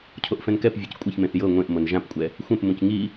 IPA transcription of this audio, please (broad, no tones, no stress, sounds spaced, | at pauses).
cʰ o ʔ f ɛ̃ n k ɛ p vʲ e c kʷʼ ɛ ç m ẽ θ j ɤ ŋʷ ẽ ʔ m ɤ n ʒ ã p kʷʼ ɛ | xʷ ɛ̃ p m ũ c ŋ i